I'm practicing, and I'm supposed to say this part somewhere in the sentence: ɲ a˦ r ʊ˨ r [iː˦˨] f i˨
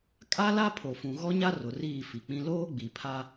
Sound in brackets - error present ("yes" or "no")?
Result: no